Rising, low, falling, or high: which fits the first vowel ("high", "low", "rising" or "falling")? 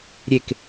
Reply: falling